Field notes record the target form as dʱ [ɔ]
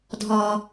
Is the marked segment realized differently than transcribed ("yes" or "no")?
no